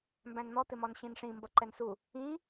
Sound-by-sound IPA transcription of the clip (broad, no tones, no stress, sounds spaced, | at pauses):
m b æ̃ n n̪ ɔ t̪ ɪ m ɔ n ɕ ĩ n ʂ ĩ m b ʌ ǃ ɛ n s u | ĩ